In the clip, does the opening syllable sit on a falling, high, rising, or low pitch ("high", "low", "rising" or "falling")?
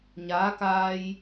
rising